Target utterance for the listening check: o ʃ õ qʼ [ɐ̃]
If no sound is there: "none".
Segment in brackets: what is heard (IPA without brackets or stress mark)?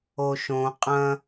ɐ̃